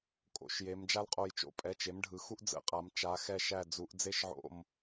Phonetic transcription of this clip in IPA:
kʼ o̰˩˧ ʃ j e˩˧ m d͡ʒ a˥ l qʼ o˧˩ j t͡ʃ o̰˩˧˩ pʼ ɛ˩˧˩ t͡ʃ e˩˥ m ɖʱ ɯ˩˧ x u˥ ʔ d͡z ə̰˩˧ qʼ a˩˧ m t͡ʃ a˩˧ x ɛ˧˩ ʃ æ˧˩ d͡z u˩˧ ʔ d͡z e˥˨ ʃ ʕ o̰˧˩ m

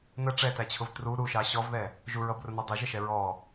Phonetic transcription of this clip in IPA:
n ə ʈ͡ʂ ɛ t æ t͡ɕʰ ʊ v t r u ɾ u ʃ ɑ ɕ ɔ v ð ɛ | ʒ u ɹ ʌ b r ʊ n ɔ dˤ ɪ ʒ ə ʃ ɛ ɹ ɔ

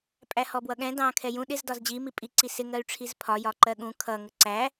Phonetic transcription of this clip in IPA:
pʼ æ h ɔ b w ʌ ɠ ɛ̃ d ɑ̃ kʰ ɛ j ũ ɗ ɪ z d ɒ z d͡ʑ i m i pʼ i ǀ i s ɪ ŋ ɜ y̯ ʈ͡ʂʰ i z pʰ ɒ j ɒ ǃ ɜ ɠ ũ kʰ ʌ ŋ ə ǀ æ

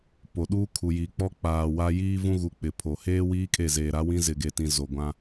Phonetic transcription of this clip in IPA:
p o˨ ɗ uː˦ kʰ u˨ j i˨ k͡p ɔ˦ k͡p aː˨ w a˦ j iː˦ v ũ˦ ɣ u˨ k͡p ɪ˨ pʰ o˨ h eː˦ w iː˦ kʼ e˦˨ z eː˨ ɾ a˦ w ĩ˦ z ɪ˨ ɡ e˨ t ĩ˨ z o˨ ɡʷ ã˦

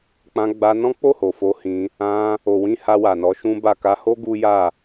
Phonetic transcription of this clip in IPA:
k͡p ã˧ ɡ͡b a˧ n ɔ̃˦ k͡p o˦˨ h o˨ f o˧ h ĩ˧ | ã˧ | o˨ w ĩ˧ h a˧ w a˨ n ɔ˨˦ ʃ ũ˦ b a˦˨ k a˧ h o˦ ɡ u˦ j a˦˨

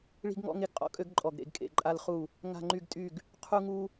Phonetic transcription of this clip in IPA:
ɭ i̤˦ ɡ ŋ ɔ̰˦ ŋ e˦ ɡ qʼ ɔ̰˦ kʼ ø˦ ɡ ǃʼ ɔ˦˨ ɡ ɾ ḛ˦ ɡ kʼ ḛ˦˨ ǃʼ a˦ l χ u˦˨ | ŋ a̤˦˨ ŋ͡ǃ y˦˨ ɡ tʼ y˦˨ ɡ | qʰ u˦ ŋ u˦

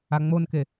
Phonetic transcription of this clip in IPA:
a ŋ͡m o n k e

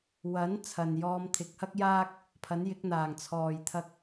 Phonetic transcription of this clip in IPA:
w ɐ˨˥ n t͡sʰ ɐ˨ n j ɔː˧ m t̪ʰ ɪ˨˥ k̚ h ɐ˥ k̚ j aː˧ k̚ | pʰ ɐ˨˥ n j ɪ˨˥ k̚ n̪ aː˨˩ ŋ t͡sʰ ɔː˨˩ j t̪ʰ ɐ˨ k̚

